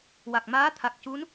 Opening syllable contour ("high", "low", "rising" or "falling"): low